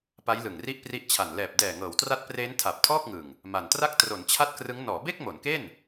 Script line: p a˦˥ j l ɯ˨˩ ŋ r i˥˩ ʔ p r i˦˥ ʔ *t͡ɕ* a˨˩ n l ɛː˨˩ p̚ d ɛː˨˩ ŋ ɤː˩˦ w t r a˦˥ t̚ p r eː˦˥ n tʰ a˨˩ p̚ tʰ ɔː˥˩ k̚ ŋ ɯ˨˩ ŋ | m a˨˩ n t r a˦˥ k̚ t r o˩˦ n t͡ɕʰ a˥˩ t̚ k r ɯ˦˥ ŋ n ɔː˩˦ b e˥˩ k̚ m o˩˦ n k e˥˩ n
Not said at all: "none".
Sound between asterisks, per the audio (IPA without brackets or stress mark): t͡ɕʰ